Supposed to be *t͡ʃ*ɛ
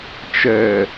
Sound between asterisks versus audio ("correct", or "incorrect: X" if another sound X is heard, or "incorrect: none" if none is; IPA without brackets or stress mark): correct